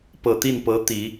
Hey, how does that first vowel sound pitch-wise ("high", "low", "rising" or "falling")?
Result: low